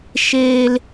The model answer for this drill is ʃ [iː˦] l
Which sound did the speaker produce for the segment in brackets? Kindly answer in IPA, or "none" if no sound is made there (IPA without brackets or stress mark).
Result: eː˦